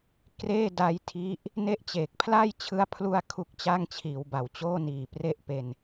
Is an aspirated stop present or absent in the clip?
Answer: present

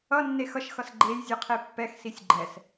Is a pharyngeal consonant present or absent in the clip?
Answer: absent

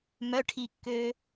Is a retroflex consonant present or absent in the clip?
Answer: present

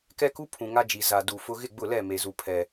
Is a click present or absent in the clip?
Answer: absent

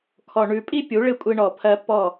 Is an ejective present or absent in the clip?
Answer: present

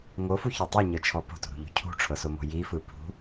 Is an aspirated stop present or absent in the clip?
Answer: present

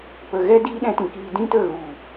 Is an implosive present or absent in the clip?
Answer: present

